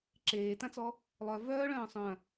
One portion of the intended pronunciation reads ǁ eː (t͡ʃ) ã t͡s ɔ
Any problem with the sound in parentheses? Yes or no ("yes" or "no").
yes